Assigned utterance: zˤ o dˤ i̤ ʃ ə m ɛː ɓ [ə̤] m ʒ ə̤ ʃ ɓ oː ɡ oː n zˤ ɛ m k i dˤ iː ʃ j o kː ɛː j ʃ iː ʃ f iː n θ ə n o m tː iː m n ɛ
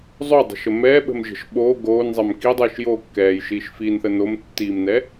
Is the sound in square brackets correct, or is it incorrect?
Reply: correct